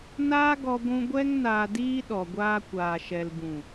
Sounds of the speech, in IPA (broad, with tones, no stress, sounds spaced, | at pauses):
n aː˦ ɡ ɔ˧ ɡʷ ũ˧ ɡʷ ɛ˦ ŋ n aː˧ d iː˦ ɗ ɔ˨ ɡʷ aː˧ kʷ aː˨ ʃ ɛ˨ l b ũ˨